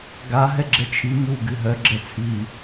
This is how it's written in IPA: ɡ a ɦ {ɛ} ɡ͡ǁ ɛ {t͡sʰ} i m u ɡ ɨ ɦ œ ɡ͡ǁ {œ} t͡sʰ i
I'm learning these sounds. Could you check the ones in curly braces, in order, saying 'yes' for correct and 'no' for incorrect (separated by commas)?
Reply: yes, no, no